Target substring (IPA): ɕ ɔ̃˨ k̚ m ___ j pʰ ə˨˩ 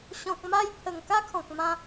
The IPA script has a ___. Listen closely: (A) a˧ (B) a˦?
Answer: A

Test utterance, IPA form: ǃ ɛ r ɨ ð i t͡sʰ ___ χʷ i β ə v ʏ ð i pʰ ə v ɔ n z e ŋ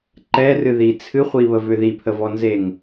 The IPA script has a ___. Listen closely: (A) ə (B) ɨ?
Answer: B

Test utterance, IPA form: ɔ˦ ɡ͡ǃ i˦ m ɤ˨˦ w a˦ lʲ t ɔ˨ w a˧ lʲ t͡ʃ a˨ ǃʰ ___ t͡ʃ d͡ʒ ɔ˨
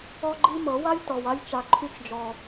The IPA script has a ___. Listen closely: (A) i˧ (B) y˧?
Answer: B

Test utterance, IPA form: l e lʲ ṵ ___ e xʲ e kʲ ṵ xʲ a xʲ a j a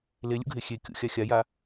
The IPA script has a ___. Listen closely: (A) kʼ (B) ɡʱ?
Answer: B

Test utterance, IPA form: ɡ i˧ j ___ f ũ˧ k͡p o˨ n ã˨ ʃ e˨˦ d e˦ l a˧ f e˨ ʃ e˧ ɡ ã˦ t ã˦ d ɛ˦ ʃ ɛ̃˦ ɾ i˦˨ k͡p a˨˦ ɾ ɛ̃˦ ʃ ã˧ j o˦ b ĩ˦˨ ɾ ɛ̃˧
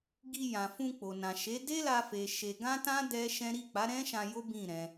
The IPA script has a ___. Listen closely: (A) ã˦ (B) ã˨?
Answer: B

